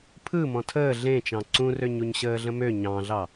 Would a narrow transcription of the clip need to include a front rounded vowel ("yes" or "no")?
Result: yes